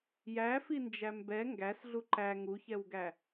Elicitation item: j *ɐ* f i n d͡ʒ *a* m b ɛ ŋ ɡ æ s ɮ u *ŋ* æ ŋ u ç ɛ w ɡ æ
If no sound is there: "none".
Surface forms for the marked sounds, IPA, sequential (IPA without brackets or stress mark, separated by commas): æ, æ, ǃ